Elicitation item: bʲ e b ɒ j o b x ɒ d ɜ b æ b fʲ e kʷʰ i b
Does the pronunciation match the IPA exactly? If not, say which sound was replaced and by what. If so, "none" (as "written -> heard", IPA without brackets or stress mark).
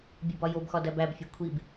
ɜ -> æ